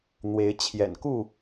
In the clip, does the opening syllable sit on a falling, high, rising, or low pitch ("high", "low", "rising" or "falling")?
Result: rising